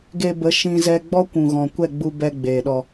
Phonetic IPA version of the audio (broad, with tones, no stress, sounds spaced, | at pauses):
ɡ e˧ b ə˨˦ ʃ ĩ˧ z ɛ˧ ɡ͡b ɔ˦ kʷ ũ˨ ɣ ɔ̃˨ kʷ ɛ˦˨ ɡ͡b u˧ b ɛ˧ ɡ͡b eː˨ ɗ ɔ˧